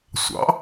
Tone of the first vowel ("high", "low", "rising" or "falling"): rising